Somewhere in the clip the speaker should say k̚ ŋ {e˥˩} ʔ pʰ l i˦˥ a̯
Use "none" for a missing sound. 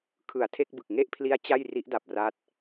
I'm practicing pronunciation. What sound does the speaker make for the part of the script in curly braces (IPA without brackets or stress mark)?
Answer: e˥˩